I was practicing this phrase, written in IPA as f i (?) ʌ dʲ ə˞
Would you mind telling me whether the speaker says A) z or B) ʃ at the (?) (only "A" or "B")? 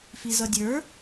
A